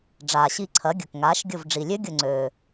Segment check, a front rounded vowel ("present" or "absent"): present